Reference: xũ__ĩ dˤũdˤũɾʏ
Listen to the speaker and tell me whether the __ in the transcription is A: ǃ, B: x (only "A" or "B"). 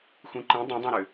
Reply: A